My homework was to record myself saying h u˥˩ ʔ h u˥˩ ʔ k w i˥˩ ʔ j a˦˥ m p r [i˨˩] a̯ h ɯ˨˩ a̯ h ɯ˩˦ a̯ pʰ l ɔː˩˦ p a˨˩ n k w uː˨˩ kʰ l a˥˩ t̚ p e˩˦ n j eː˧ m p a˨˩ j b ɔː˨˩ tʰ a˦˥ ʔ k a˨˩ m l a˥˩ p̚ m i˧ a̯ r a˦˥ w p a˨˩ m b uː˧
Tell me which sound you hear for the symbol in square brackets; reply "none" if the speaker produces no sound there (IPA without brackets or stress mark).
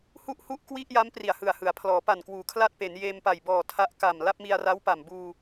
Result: i˨˩